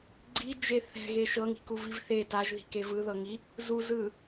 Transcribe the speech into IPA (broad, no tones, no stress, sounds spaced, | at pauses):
ɡ͡ǀ i d͡ʒ e θ ɛ̤ ɣ e ʃ ɤ ŋ i̤ k u v i v θ e t a ʒ ð i̤ k e v ɯ ð ɤ ŋ i | z u z ɯ